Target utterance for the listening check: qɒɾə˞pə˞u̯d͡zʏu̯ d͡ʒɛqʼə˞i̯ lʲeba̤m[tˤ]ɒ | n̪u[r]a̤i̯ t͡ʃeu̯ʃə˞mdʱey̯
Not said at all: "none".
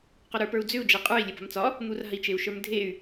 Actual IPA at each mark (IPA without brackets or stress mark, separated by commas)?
t͡s, r